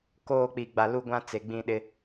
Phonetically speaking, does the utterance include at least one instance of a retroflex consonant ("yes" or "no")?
no